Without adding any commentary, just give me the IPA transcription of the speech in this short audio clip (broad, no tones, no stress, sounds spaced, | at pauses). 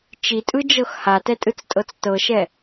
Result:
t͡ʃ i tʼ ɯ d͡ʒ ɤ x h a t ɛ tʼ ɯ t͡s tʼ ɤ t͡s t ɤ ʃ ɛ